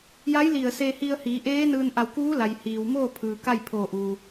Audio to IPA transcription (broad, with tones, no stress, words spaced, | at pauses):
ja˧˥jli˧˩ə̯se˧hi˧ə̯ hiː˩˧ʔeː˧˥nɯː˧n ʔa˧˩wkuː˧˥la˩j hiː˩wmoː˥˨pʰɯː˩ ka˥˨jpʰoː˧˩ʔuː˩